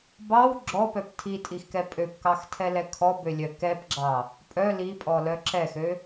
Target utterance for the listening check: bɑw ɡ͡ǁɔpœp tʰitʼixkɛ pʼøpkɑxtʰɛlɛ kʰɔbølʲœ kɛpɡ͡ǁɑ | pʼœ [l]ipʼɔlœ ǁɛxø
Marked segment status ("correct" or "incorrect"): correct